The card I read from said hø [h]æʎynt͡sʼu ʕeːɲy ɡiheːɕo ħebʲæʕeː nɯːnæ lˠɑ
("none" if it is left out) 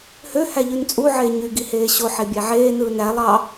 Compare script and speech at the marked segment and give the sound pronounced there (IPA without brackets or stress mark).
h